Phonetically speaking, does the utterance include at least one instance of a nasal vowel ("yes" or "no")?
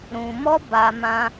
yes